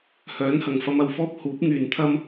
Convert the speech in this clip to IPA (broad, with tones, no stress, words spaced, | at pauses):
hœː˨˥nhɐ˨˩ŋfɐ˧m ɐ˧wfɔː˥p̚ huː˨˥p̚ŋyː˨nt̪ʰɐ˥m